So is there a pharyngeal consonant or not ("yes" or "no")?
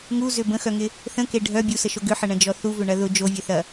yes